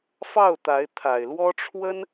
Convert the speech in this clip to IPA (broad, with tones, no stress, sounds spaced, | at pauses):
f ɑ˥˩ ʊ̯ t̪ a˧˥ ɪ̯ t̪ʰ a˨˩ ɪ̯ l w ɔ˥ ʈ͡ʂʰ w ə˥ n